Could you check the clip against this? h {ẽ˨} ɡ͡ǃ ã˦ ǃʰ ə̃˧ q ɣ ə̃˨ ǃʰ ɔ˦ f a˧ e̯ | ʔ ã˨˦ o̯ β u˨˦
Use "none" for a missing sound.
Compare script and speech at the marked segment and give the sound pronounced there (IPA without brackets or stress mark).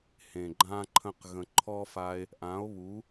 ẽ˨